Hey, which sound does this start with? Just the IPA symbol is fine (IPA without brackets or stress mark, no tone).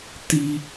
t